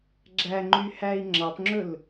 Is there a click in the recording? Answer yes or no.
yes